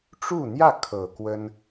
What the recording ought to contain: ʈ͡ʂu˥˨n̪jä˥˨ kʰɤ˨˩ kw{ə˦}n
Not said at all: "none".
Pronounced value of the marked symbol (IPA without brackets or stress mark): ə˦